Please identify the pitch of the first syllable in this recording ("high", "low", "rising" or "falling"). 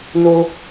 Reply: high